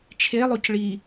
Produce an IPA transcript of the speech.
t͡ʃʰelˠoc ɭi

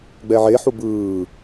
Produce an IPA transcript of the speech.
ɡ͡bɛʕeħu bɯː

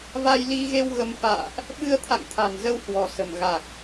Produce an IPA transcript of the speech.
va˧jli˧ɣe˧w ɣə˧m fa̰ː˧˨ʔ | ɓɨ˧ə̯t̪ʰa̰˧˨ŋt̪ʰa̤˨˩n zə˧whwɔ̤˨˩sə̤˨˩m ɣa˨˩k̚

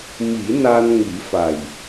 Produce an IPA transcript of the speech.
mi˨˩˦ na˧n ŋi˨˩˦fa˨˩j

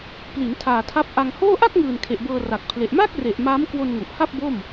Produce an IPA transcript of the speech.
pli˩˦n tʰaː˨˩tʰa˦˥p̚ ʔa˧ŋhoː˥˩ ʔa˥˩k̚ŋɯː˨˩n kʰe˨˩ʔbɤː˧ra˨˩k̚pʰle˨˩ʔ ma˥˩k̚re˨˩ʔ maː˦˥mkwo˧nŋu˨˩ʔha˥˩p̚ bo˥˩m

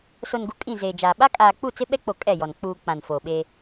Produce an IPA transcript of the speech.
so˨nɡu˨ kʼĩ˦˨zeː˨d͡ʒaː˨ ɓa˦kʼaː˨k͡pu˦˨ t͡sɪ˦ɓɛ˦k͡po˨ kʼɛ˦˨jɔ˨n k͡puː˨ k͡pã˨nfoː˨ɓe˦

